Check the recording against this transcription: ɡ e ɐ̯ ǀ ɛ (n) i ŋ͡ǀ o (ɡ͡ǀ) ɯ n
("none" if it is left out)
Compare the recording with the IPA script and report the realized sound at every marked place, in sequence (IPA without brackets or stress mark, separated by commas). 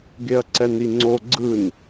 n, ɡ͡ǀ